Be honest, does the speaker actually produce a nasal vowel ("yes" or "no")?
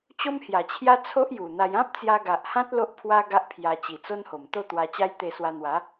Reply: yes